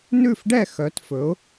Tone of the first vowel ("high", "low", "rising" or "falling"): falling